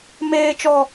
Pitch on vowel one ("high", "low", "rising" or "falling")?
high